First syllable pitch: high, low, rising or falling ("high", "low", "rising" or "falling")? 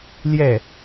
falling